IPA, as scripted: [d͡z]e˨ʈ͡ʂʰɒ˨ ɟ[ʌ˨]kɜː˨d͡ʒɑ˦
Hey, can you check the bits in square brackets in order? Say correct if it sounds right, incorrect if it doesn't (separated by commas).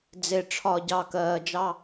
correct, incorrect